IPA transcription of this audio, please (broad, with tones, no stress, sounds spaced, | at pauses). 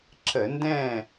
ǁ ə˧˩˧ n d ɛ̃˥˨